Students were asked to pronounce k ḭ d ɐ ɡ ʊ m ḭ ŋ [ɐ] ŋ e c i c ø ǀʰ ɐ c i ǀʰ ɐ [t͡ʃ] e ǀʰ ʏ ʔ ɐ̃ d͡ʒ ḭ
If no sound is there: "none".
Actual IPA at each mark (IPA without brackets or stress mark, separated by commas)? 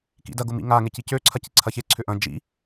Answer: a, ç